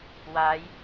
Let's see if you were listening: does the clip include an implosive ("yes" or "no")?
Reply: no